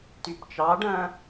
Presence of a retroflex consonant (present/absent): present